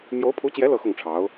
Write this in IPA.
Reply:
m j o˧˥ ʊ̯ pʰ u˧˥ t͡ɕ j ɛ˧˥ l ɤ˥˧ x ʊ˥˩ ŋ ʈ͡ʂʰ ɑ˧˥ ʊ̯

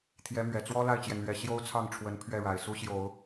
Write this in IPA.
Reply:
t̪ʰ j ɛ˧˥ m ɥ ɛ˨˩ t͡s w ɔ˥ l a˥˩ ɪ̯ t͡ɕ j ɛ˩ n l ɥ ɛ˨˩ ɕ j o˥ ʊ̯ t͡sʰ ɑ˥˩ ŋ ʈ͡ʂʰ w ə˧˥ n pʰ ɥ ɛ˥˩ ɻ a˨˩ ɪ̯ s u˥ ɕ j o˨˩˦ ʊ̯

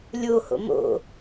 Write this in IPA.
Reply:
lʲ o h o̰ m o̰

